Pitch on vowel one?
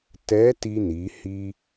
rising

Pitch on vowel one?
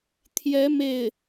rising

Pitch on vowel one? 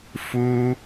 high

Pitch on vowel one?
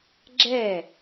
falling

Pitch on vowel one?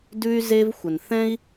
high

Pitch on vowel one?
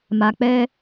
low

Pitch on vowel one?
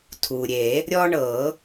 low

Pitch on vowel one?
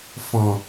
low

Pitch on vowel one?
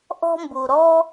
high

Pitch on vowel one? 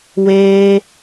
high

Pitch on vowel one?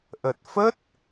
low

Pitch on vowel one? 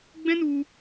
high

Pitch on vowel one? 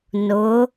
rising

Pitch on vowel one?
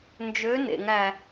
rising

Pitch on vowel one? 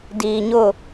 low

